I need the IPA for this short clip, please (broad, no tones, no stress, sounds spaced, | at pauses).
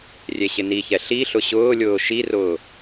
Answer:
rʲ e ɕ ɪ n i ç ɛ ɬ i ɬ ʊ ɕ ʊː lʲ ʊː ʃ i r ʊː